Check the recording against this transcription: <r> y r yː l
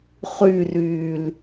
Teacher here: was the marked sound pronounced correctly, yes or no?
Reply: no